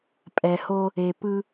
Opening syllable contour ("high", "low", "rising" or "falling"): low